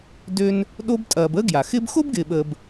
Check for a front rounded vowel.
present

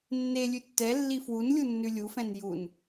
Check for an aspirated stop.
absent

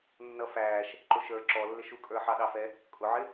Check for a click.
present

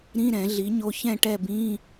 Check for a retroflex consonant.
present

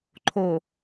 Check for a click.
present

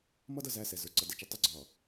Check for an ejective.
absent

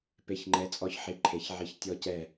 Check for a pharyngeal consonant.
present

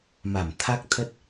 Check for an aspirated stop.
present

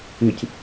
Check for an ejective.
absent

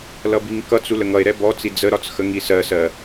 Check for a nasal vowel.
absent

